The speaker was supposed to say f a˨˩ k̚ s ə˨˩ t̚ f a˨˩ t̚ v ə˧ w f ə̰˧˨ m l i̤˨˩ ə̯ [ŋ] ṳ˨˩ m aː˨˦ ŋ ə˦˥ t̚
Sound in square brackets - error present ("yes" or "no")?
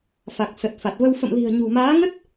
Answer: yes